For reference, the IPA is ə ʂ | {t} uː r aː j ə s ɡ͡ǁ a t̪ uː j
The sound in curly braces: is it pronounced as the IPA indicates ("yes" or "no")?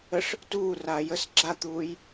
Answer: yes